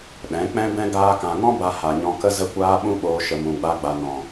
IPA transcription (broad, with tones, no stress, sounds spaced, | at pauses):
ɗ ɛ̃˨˦ k͡p ɛ̃˦ b ɛ̃˦ ɡ aː˧ k ã˨ ŋ ɔ̃˦ b a˧ h a˨ ɲ ɔ̃˧ k ə˦ z ə˧ kʷ aː˧ ɓ ũ˦ ɓ oː˧ ʃ ə˨ m ũ˨ ɡ͡b a˧ ɡ͡b a˨ n ɔ̃˨